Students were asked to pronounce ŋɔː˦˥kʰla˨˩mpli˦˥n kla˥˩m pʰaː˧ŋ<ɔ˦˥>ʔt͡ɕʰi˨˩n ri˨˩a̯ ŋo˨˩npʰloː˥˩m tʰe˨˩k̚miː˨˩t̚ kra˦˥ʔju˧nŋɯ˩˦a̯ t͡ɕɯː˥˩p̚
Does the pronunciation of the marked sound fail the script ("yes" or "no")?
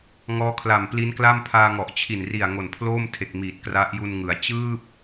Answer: yes